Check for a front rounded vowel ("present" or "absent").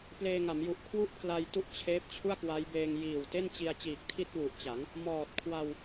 absent